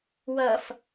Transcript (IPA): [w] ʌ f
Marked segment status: correct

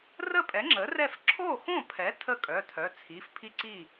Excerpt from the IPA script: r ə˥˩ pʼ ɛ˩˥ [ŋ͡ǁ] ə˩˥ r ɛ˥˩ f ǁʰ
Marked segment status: correct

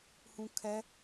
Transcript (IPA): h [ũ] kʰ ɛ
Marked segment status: correct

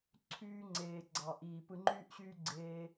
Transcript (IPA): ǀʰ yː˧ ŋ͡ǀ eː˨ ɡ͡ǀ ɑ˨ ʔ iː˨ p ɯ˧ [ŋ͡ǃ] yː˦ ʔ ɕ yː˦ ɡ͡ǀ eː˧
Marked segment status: correct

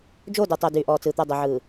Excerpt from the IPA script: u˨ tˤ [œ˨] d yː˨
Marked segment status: correct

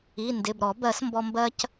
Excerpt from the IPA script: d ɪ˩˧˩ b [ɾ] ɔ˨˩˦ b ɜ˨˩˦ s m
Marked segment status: correct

